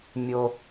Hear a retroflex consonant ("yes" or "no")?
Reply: no